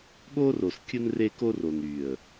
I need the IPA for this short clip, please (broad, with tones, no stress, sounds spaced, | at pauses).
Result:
ɠ o˦ r o˨ s kʲ ɯ˦ n r e˦ k o˦ r o˨ n y˨ ə̯